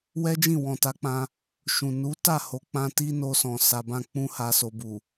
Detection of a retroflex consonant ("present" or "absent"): absent